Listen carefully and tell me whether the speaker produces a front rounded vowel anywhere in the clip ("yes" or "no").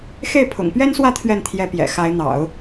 no